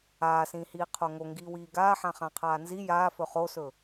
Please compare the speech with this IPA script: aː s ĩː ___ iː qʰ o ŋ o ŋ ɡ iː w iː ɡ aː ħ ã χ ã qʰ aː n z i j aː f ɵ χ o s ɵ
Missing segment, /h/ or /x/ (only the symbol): h